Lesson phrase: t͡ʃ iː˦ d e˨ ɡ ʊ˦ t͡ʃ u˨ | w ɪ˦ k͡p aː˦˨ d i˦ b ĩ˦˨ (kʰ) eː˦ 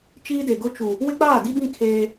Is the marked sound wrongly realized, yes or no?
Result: no